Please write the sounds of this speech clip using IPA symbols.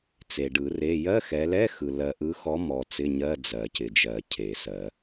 t͡s e˨ ɖ ɯ˨˩˦ r e˧˥˧ j ɜ˧˥˧ x ɛ˨˦ l ɛ˧˥˧ x ɯ˨ l ɜ˨ ʔ ɯ˨˦ x ɔ˨˦ m ɔ˨ t͡s ɪ˧˥˧ ɲ ɜ˧˥˧ d͡z ɜ˨˩˦ c ɪ˨ d͡ʒ ɜ˨˩˦ cʰ e˨˩˦ s ɜ˨˩˦

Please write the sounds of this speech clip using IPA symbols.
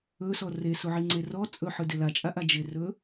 ɵ s ɔ r e s u ʕ i ŋ͡ǀ e r ɔ t͡sʼ ɵ ħ ɯ d ɪ l a t͡ʃʼ a ʔ a d͡ʒ ɪ r ɵ

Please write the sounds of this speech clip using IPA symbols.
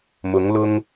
m ʊ˧˥ ŋ l ʊ˥ ŋ

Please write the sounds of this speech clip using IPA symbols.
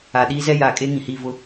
a˨ ɗ iː˦ z ɛ˦ j a˨ kʼ e˦ ŋ ĩ˨ h i˦˨ v ʊ˦

